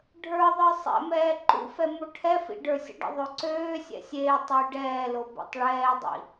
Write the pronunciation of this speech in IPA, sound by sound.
ɖʱ ə˞ ðˤ ə˞ sˤ ɛ̰ m ɛː ǃ ṵ f ɛ m o ʈʰ ɛ f ḭ ɖ ə˞ sʲ ə̰ ɖ ə̰ ðˤ ø ǀ øː sʲ ɛ̰ sʲ eː tˤ e j ɖ ɛː l o b ɛ̰ tˤ ɭ ɛː dˤ ḭ

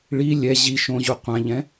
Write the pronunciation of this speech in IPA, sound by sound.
ɭ i lʲ ɛ ʑ i ʃ õ ʑ u qʷ ã ʎ ɛ̃

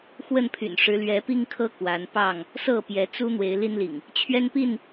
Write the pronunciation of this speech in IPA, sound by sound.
x w ə˥˨ n pʰ y̰˨˩ n ʂ ɻ̩˨˦ l ɥ ɛ˨˦ p i˦ ŋ kʰ ɤ˦ k w a˨˦ n p ɑ˥˨ ŋ | s ɤ˥˨ p j ɛ˨˦ t͡s u˦ n̪ w e˨˦ ɪ̯ l i˦ n l ḭ˨˩ ŋ | t͡ɕʰ ɥ ɛ˦ n p i˥˨ n

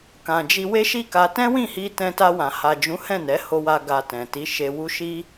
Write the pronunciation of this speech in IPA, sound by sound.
k ã˨ d͡ʒ i˧ w e˦ ʃ i˦˨ k a˧ t ɛ̃˦ w ĩ˦˨ h i˧ t ɛ̃˧ t a˧ w ã˨ h a˨ d͡ʒ ũ˨˦ h ɛ̃˦˨ n ɛ˨˦ h o˧ w a˧ ɡ a˧ t ɛ̃˨ t i˨˦ ʃ e˧ w u˦ ʃ i˦

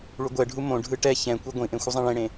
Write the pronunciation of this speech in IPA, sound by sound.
ɭ u ɡʷ ɛ ɖʱ u m õ ɖʱ ɯ ʈ ɛ ç ɛ̃ kʷ i ɡʷ ĩ ʔ ẽ xʷ ɯ zˤ ɛ̃ ɭ ẽ ɽ ẽ

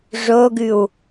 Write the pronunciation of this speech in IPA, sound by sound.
ʐ o ɡ ʉ w

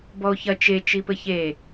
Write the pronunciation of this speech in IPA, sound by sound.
b ɔ o̯ ç ɐ t͡ʃ e t͡ʃ i p ɘ ç e

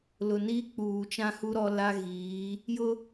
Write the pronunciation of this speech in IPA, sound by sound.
l ʊ˨ n iː˦ k͡p uː˨ t͡ʃ ã˦ h u˦ ɾ ɔ˦ l a˦ ɣ iː˨˦ | j ʊ˦

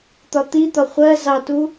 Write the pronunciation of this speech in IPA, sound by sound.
t̪ ɒ t̪ i t̪ ɒ χʷ ɜ z ɑ t u

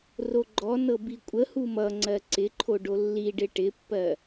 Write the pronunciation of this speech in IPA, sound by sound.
r o ɡ͡ǃ ɔ n ɤ b i kʷʼ ə h u m ʌ ŋ͡ǀ ɜ ǀ ɪ ǃʰ o ɖ o lː i ɖ ɪ ʈ ɪ pː ɜ

